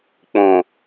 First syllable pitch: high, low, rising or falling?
low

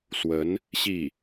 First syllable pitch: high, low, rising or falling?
rising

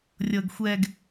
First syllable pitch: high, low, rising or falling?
low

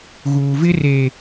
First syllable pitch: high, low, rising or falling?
low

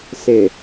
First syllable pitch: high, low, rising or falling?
low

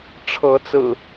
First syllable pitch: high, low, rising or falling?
rising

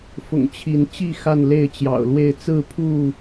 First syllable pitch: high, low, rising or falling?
low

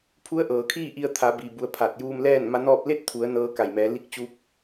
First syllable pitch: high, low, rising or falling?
rising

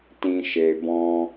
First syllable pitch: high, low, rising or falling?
low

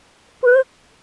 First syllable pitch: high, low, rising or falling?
falling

